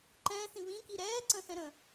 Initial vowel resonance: nasal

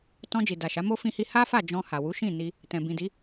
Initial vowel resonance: nasal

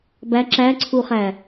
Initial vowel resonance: oral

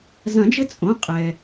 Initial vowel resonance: nasal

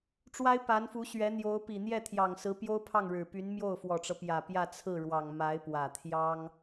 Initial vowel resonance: oral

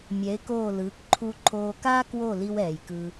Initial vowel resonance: oral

